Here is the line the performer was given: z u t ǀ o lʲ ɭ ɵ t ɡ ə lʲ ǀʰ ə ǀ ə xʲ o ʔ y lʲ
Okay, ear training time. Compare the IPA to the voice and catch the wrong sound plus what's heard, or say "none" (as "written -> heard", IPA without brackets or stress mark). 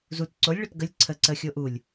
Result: y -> u